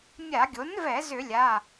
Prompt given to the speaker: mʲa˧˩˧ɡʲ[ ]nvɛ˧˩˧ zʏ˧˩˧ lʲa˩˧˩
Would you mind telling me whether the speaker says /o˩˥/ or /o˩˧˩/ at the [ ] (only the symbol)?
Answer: o˩˥